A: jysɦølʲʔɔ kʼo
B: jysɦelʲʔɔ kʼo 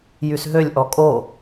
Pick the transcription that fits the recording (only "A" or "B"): A